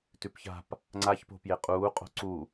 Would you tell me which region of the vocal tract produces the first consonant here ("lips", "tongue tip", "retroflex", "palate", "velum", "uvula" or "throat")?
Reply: tongue tip